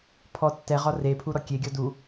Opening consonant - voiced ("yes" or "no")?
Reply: no